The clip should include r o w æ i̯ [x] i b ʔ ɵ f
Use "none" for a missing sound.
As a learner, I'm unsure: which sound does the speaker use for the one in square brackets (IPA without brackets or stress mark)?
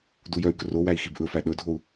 x